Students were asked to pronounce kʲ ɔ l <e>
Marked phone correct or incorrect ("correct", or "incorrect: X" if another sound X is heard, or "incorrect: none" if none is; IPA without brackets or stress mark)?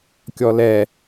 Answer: incorrect: ɛ